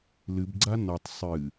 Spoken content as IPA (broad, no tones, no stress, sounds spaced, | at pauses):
l ɨ b ɡ͡ǀ a n ɔ tˤ sˤ ɨ